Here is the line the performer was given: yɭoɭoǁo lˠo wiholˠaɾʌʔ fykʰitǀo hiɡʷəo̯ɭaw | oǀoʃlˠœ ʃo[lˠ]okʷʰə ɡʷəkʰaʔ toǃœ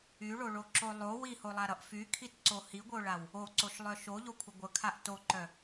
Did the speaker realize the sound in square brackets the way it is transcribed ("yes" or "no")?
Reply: no